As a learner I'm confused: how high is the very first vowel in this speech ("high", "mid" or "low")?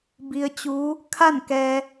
high